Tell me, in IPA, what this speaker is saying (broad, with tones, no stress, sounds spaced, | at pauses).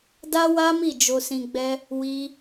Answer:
d a˦ w a˦ m i˦˨ d͡ʒ o˧ s ĩ˧ ɡ͡b ɛ˦ | w i˦